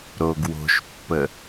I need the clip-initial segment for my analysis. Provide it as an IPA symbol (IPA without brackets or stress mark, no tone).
ɾ